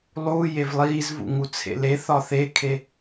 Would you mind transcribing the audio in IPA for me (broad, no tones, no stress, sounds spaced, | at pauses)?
lˠ uː j e v lˠ iː z v ṵ ŋ u t͡sʰ ḛ l e θ ɒ θ e kʰ e